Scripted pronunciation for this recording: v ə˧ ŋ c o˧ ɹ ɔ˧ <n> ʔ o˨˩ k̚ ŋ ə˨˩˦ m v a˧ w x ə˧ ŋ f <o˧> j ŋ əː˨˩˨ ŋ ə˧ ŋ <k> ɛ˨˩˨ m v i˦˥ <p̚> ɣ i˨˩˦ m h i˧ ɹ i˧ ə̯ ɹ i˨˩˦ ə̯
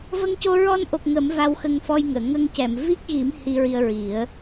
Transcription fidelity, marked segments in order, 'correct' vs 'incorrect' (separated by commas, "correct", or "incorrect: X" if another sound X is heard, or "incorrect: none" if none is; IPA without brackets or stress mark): correct, incorrect: ɔ˧, incorrect: c, incorrect: k̚